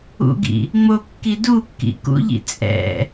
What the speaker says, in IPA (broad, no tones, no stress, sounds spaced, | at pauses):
ṵ ɡ ḭ | ŋ͡m o kː i d u kː ḭ k ṵ ʎ ḭ t͡sʼ ɛ̰